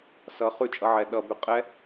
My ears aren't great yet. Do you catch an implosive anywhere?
yes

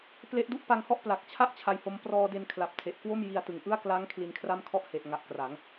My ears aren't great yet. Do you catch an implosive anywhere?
no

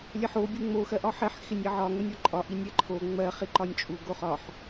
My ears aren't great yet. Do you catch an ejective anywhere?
yes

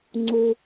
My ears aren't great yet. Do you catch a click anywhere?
yes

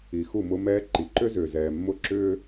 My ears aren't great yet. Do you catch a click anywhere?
yes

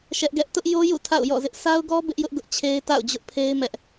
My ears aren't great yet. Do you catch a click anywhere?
no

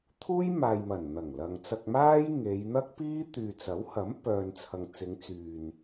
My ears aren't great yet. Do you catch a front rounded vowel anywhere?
yes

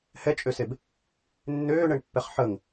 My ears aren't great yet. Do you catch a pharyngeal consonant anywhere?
yes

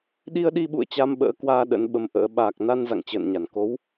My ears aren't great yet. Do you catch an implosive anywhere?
yes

